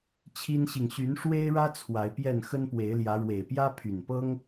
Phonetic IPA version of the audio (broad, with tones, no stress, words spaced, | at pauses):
t͡ɕʰi˦nɕi˨ŋ ɕy˨˦nʂwe˦ɪ̯ɻä˦ t͡sʰwa˨˦ɪ̯pjɛ˥˨n xə˦npwe˨˦ɪ̯ljä˨˦ ɻwe˨˩ɪ̯pjä˦pʰy˨˩npɤ˦ŋ